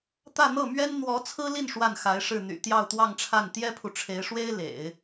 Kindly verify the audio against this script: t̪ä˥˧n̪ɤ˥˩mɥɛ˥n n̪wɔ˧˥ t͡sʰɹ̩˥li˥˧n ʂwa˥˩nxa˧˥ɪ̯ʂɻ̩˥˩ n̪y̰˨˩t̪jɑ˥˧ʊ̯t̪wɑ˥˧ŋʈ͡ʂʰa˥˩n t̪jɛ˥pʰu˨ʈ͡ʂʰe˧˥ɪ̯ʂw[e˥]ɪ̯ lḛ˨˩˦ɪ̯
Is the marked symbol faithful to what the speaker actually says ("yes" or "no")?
yes